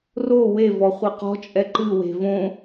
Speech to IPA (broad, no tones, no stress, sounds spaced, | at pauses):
r o w e v ɔ χʷ e q ɔ̤ t͡ʃʼ ɛ ǃ ɨ w e̤ v õ